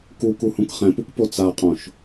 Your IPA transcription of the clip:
kukuhũk χɛ̃pukpo t͡saqʼõʃ

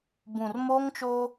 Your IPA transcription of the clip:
bũ˨rmoː˦ŋt͡ʃoː˦

